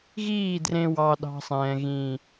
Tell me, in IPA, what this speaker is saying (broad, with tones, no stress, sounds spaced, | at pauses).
ɣ iː˦˨ d r ẽ˧ w ɑ˧ ɗ ɑ̤˧ sˤ ɛ̃ː˨ ɣ ĩː˨